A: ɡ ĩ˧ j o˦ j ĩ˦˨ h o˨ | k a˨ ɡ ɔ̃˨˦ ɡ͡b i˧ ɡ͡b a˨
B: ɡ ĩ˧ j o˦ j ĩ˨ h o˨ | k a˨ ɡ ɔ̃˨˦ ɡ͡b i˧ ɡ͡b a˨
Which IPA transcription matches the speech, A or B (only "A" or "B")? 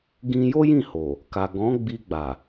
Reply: A